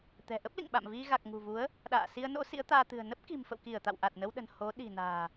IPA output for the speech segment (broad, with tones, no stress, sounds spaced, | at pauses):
t̪ ɛ̤˨˩ ʔ ə˦˥ p̚ l ḭ˧˨ ŋ ɓ a̰˧˨ m v i˧ ɣ a˨˩ k̚ ŋ ṳ˨˩ v u˨˦ ə̯ | ɗ a̰ː˧˨ s i˧ ə̯ n o̰˧˥ s ḭ˧˥ ə̯ t̪ aː˧ t̪ ɨ̤˨˩ ə̯ n ə˦˥ p̚ k i̤˨˩ m f ə̰˧˨ w k i˧˩ ə̯ t̪ a̰˧˨ w ʔ a˨˩ t̚ n ə˧ w ɗ ə̤˨˩ n h o˨˦ ɗ i̤˨˩ n a̤ː˨˩